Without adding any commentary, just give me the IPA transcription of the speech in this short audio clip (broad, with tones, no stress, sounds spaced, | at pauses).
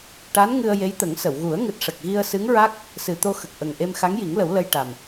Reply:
ʈ a˧˥ n ŋ ɨ˧ ə̯ j e˧˥ j t̪ ə˨˩˦ ŋ s ə˨˩˨ w ɣ u˨˩˦ ə̯ ŋ ɨ˨˩ t̚ ʂ ə˨˩ k̚ ɣ i˧ ə̯ s ɨ˧˥ ŋ ɹ a˦˥ k̚ | s ɨ˨˩ t̪ o˧ x ə˨˩ k̚ ʔ ə˨˩ ŋ ʔ e˧ m x a˧˥ ŋ j i˨˩˦ ŋ l ə˨˩˦ w l ə˧ j ʈ a˨˩ m